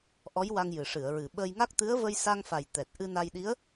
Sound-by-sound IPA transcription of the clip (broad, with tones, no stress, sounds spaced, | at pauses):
ʔ ɔ˧˥ j w a˧ ŋ j ɨ˨˩ ʂ ɨ˨˩˨ ə̯ ɹ ɨ˨˩ ɓ ə˧ j ŋ a˦˥ k̚ t̪ ɨ˧˥ ə̯ v ə˧ j s a˧ ŋ f a˨˩ j t̪ ɛ˨˩ t̚ ʔ ɨ˧ n a˧ j ɗ i˧˥ ə̯